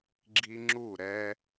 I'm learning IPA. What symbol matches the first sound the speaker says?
ɡ͡ǁ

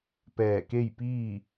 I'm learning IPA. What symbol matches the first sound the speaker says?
p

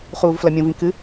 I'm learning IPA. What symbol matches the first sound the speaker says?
χ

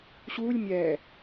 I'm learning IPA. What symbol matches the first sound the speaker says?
ɕ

